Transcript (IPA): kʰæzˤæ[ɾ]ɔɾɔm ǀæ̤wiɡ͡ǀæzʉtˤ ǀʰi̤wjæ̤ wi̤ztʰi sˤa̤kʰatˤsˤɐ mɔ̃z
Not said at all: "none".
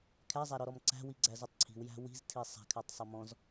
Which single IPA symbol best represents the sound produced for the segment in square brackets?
ɾ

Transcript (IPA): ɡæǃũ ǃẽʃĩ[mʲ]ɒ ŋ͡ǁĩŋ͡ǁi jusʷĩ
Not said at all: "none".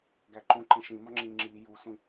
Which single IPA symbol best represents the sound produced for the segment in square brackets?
m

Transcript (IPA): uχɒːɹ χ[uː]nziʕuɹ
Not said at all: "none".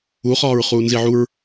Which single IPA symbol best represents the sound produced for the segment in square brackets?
uː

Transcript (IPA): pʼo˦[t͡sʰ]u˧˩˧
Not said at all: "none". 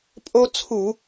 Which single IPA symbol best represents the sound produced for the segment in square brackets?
t͡sʰ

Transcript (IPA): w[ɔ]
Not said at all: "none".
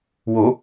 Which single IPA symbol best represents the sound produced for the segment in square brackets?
o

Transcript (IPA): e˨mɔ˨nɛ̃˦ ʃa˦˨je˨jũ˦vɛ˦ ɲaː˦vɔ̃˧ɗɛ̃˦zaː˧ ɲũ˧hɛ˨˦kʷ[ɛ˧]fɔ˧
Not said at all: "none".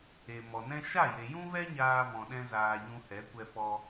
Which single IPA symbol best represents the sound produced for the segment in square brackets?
ɛ˧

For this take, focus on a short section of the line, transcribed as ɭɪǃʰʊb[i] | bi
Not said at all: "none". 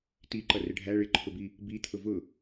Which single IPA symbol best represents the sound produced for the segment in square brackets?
i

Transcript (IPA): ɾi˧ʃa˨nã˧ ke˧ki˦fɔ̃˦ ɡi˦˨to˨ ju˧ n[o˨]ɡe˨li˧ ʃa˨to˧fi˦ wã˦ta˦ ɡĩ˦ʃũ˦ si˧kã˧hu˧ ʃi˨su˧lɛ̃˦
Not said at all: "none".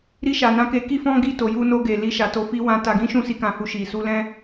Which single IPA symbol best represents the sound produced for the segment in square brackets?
o˧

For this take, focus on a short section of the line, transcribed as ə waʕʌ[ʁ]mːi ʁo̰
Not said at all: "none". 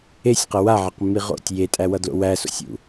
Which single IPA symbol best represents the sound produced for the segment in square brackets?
q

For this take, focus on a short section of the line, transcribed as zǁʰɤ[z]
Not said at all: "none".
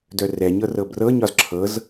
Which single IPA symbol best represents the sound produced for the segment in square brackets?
z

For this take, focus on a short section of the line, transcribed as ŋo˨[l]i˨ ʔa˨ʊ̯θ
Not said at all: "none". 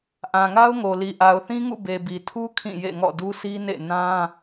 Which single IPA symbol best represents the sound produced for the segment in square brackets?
l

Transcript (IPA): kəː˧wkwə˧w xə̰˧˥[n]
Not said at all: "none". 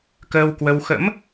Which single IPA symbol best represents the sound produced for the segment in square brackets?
m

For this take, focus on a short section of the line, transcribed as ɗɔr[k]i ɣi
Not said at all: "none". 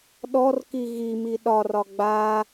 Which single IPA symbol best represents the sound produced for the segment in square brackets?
k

